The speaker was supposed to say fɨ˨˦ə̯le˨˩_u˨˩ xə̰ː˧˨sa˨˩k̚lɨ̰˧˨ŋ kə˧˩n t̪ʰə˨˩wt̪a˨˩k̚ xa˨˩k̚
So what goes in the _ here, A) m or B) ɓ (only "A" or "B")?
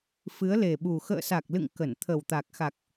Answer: B